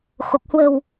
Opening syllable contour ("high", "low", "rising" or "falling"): low